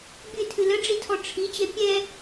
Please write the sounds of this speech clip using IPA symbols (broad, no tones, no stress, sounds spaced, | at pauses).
bʲ ɨ tʰ ɨ l ə ɖ͡ʐ i tʰ ɔ ʈ͡ʂʰ i t͡ɕ ɛ pʲ ɛ